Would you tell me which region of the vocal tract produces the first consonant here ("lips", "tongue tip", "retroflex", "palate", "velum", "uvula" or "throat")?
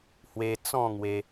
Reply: throat